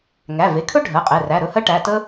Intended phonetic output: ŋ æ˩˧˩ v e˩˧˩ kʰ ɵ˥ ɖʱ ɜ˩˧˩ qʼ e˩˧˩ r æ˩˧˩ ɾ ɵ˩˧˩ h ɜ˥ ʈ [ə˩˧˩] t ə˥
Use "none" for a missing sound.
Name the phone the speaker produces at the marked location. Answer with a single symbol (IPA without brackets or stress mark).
æ˩˧˩